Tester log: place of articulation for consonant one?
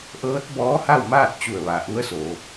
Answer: glottal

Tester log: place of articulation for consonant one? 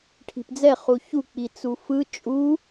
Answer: retroflex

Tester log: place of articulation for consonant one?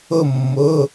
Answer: labial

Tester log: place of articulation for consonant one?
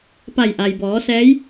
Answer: labial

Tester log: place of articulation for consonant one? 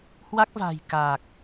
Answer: glottal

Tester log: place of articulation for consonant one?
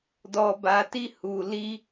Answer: alveolar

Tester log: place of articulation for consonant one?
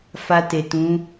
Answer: labial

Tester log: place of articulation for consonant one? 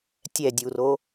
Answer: alveolar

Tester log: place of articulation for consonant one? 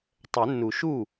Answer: alveolar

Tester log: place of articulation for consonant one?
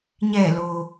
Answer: palatal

